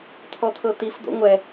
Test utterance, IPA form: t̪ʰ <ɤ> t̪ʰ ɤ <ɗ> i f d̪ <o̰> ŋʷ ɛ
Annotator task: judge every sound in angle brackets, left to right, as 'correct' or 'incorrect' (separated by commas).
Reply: incorrect, incorrect, correct